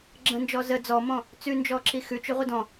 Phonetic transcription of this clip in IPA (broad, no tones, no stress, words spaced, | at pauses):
ɡ͡ǁə̃nd͡ʒɔ zə d͡zɔmɔ̃ | t͡sʉnd͡ʒɔǁi xʉt͡ʃʉʁʷə dɔ̃